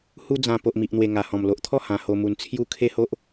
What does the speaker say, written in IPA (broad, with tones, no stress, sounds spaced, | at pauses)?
h u˦ d͡z ã˧ p o˨ ʔ m i˨ ʔ n̪ w e˨˩ ŋ a˨˩ h ɔ̃˨˩ m l o˨ ʔ t̪ʰ ɔ˥˧ h ã˧ h o˧ m u˧ n t͡sʰ j u˦ kʰ e˦ h o˦ ʔ